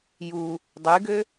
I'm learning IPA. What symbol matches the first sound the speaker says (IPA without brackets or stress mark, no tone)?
j